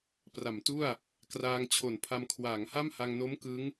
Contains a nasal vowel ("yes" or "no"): no